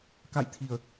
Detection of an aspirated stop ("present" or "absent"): present